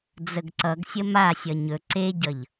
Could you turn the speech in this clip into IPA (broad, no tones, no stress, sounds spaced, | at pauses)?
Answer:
d͡z ə ɡ ǀ ʌ ɡ sʲ ə m a sʲ ʌ ɲ ɵ ǀ e ɟ ʌ ʎ